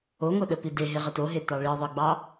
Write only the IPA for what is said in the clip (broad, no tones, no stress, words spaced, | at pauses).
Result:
oŋo ɗəpide ɦeʁətoɦe tɑɭiðˤeɡ͡bɑ